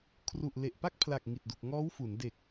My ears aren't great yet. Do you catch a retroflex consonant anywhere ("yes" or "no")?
no